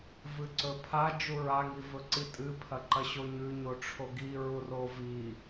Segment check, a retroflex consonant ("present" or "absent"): present